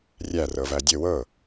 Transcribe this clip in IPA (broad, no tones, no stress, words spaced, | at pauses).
rʲærɤ vædʲɘ wɤ